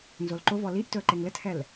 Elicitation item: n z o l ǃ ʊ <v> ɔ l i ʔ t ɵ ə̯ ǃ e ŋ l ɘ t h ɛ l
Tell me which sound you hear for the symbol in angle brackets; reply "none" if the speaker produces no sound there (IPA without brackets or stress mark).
v